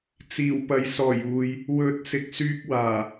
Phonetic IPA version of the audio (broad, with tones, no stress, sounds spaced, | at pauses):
t͡s iː˨˩ w p ɐ˨ j s ɔː˨˩ j uː˨ j | w ɵ˨˥ t̚ s ɪ˧ k̚ s yː˥ k̚ w aː˨˩